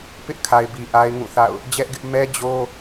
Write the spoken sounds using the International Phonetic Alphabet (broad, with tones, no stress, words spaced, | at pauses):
pɪ˦ʔkʰa˨ɪ̯bi˨ ʔa˦ɪ̯ŋũ˦˨θa̰˦˨ʊ̯ | d͡ʑɛ˦ʔɡɪ˦ʔ mɛ˦d͡ʑo˦